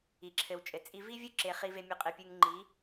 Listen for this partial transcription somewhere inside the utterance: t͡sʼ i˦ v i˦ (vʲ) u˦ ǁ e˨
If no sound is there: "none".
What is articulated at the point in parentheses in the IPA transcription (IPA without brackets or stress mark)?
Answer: vʲ